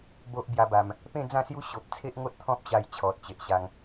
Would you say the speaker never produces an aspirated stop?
no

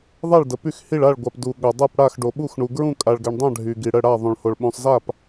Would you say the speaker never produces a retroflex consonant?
no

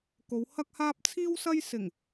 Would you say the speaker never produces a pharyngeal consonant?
yes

